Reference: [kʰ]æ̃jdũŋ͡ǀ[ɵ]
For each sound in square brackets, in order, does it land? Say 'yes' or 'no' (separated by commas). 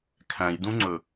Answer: yes, yes